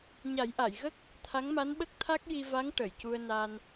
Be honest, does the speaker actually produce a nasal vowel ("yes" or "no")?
no